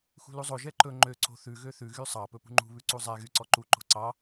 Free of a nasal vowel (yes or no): yes